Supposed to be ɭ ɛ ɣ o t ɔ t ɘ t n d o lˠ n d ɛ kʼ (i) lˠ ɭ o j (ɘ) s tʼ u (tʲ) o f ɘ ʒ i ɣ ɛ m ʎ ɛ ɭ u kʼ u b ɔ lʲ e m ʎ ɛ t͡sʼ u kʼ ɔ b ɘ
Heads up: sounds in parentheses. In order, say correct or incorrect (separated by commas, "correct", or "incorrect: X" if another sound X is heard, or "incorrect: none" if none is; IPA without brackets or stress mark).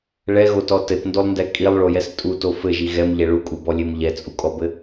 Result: correct, incorrect: ɛ, incorrect: t